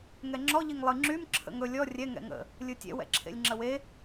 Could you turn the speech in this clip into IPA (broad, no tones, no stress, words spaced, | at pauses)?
ŋɛŋ͡ǁɔ ʎiŋlˠɨ ŋ͡ǁym ǁʰə̰ŋɵ lʲɔ rʲɛ ŋɛ̰ŋə̰ | lʲɯtʲɛ̰ wɛ̰ǁʰḛlʲŋ͡ǁəwe